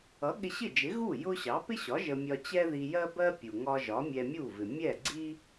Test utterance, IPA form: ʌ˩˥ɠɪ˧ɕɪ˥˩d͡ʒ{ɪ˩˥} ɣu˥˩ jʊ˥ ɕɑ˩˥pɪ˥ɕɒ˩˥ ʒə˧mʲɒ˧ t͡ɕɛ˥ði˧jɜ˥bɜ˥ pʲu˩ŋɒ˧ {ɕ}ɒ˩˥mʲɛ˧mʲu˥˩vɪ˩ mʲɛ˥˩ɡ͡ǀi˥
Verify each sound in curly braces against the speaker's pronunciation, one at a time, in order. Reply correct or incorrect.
correct, incorrect: ʒ

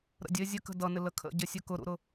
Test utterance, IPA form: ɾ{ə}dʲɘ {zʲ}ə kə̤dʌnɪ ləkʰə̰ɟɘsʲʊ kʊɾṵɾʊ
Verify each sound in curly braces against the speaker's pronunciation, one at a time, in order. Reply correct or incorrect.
incorrect: ə̰, correct

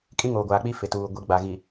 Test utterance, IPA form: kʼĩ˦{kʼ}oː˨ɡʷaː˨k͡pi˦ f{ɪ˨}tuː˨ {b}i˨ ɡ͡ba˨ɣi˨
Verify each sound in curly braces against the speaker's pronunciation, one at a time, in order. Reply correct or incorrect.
incorrect: ŋ, correct, incorrect: ɡʷ

